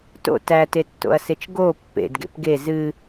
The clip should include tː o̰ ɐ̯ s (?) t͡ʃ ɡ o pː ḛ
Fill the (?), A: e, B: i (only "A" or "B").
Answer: A